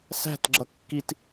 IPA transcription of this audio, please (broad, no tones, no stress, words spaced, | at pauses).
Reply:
sæ̤tɡ͡ǁʌ kːit